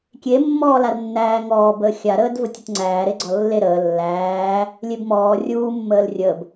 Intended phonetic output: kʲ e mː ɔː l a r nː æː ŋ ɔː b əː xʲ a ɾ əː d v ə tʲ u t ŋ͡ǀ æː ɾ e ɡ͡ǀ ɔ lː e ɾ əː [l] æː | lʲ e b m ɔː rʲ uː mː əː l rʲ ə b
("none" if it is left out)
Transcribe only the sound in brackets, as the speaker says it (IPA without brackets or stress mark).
lː